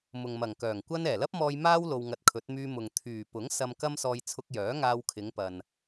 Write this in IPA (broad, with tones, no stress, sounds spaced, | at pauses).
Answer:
m ʊ˨ ŋ m ɐ˨˩ ŋ k œː˨˩ ŋ kʷ ɐ˥ n ɛː˨˩ l ɐ˥ p̚ m ɔː˧ j m aː˥ w l o˧ w ŋ ɐ˧ t̚ kʰ ɵ˨˥ t̚ m yː˧ m ʊ˨ ŋ t̪ʰ yː˨˩ p ʊ˨˥ ŋ s ɐ˧ m k ɐ˥ m s ɔː˧ j t͡sʰ ʊ˧ k̚ j œː˨˥ ŋ aː˧ w kʰ ɪ˨˧ ŋ p ɐ˨ n